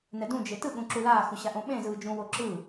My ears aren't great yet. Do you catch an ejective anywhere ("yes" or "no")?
no